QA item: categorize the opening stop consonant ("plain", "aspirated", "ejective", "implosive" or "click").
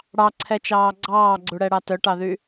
click